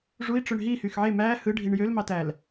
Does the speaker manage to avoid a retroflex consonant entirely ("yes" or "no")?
no